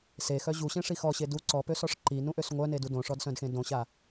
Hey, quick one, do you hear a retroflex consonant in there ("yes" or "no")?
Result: yes